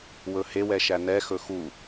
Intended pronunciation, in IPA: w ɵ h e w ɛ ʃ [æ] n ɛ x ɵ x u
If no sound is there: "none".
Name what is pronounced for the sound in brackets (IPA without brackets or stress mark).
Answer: æ